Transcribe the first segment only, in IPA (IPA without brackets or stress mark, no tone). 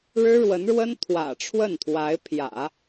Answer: ɻ